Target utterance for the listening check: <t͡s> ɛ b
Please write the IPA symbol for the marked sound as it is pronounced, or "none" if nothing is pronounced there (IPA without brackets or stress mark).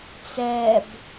t͡s